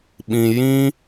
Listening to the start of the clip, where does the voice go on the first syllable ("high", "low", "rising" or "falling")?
low